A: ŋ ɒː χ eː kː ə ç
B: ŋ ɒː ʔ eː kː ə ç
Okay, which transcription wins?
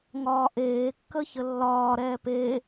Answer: B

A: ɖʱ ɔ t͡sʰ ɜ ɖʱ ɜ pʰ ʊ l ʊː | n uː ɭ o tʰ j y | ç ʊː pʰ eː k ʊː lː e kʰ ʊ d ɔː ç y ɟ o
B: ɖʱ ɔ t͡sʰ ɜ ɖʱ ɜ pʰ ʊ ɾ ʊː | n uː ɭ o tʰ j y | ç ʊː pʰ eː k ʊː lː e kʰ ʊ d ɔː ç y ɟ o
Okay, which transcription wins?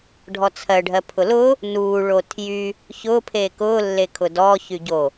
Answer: A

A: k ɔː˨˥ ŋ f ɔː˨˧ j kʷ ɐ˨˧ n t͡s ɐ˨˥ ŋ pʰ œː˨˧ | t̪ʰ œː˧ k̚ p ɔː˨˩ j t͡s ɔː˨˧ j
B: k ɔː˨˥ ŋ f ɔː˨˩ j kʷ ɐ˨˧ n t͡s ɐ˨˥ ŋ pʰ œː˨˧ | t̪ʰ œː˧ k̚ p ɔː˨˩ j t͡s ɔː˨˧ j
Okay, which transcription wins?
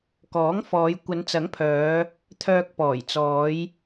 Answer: A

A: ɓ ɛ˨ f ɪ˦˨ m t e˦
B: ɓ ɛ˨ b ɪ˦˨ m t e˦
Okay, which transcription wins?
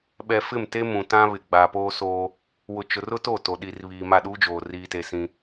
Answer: A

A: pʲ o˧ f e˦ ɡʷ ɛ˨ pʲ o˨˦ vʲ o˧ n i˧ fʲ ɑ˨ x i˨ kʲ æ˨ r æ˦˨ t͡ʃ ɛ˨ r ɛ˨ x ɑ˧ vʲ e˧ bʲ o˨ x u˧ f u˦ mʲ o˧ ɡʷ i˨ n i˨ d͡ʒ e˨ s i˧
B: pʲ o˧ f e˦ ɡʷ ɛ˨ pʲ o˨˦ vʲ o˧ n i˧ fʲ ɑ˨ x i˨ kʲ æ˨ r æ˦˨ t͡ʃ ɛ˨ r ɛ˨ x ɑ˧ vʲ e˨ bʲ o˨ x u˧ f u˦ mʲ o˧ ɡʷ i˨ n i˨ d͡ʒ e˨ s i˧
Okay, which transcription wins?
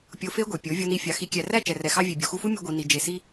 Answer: B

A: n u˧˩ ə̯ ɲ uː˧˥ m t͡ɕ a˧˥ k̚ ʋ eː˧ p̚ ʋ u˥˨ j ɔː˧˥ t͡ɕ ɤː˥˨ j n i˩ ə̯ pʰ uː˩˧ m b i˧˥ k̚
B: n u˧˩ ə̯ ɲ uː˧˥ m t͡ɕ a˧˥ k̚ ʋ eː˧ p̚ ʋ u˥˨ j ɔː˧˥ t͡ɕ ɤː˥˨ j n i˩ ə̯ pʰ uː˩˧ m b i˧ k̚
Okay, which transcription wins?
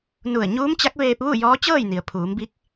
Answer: A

